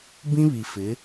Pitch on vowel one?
high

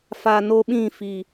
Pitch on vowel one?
low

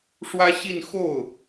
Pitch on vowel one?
high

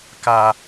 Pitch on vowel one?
high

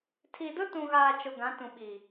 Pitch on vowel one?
low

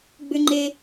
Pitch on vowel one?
high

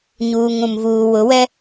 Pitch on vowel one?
low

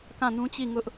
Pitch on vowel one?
falling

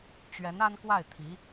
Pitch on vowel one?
rising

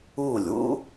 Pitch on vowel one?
falling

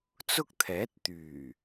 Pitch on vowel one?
high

